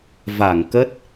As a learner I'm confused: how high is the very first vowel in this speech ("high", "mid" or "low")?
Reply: low